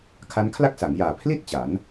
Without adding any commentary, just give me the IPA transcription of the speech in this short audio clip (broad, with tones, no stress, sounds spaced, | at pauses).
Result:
kʰ a˦˥ n kʰ l a˥˩ k̚ s a˩˦ ŋ j aː˨˩ pʰ l i˥˩ t̚ t͡ɕ a˩˦ n